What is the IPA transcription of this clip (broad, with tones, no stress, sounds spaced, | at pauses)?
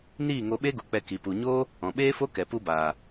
n iː˦˨ ŋ o˧ ɓ e˦ ɡ u˨ k͡p ɛ˧ k i˨ p u˨ ɲ oː˦ | ɔ̃˨ ɓ eː˦ f o˦ k ɛ˨ p u˧ b aː˨